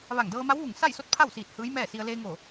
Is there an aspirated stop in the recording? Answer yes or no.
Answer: yes